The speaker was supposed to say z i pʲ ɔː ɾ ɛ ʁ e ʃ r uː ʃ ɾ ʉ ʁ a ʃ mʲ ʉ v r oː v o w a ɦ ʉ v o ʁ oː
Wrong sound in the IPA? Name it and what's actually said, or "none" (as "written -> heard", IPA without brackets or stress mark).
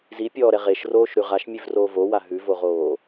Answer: uː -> oː